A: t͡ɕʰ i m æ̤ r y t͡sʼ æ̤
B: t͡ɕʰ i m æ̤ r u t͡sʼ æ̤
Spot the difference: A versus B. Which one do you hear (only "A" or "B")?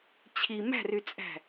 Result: A